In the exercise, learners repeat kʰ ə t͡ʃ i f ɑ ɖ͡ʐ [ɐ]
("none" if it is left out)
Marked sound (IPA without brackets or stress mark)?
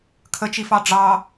ɑ